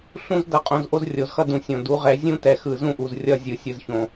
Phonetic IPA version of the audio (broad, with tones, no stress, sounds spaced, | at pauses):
ɬ ũ˦ z d ʌ˨ qʼ õ˨ z ʔ o˦ z rʲ o˨ z x ʌ˦ d ũ˨ sʲ õ˨ d u˨˦ ʁ ɛ˨˦ zʲ ũ˦ t ɛ˨ x ɯ˨ z ũ˦ ʔ u˨ z rʲ ʌ˦˨ zʲ ɯ˨ sʲ ɯ˨ z ç õ˨